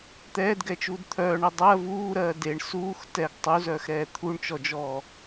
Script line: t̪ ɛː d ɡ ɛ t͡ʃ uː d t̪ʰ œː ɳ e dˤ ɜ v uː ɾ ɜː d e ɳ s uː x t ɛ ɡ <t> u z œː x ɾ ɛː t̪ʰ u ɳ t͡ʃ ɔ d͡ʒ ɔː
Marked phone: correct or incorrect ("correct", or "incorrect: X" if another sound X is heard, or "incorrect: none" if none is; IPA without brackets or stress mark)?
incorrect: tˤ